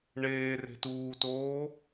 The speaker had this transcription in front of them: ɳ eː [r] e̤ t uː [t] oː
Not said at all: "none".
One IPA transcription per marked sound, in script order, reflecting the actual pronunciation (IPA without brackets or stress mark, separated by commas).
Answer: r, t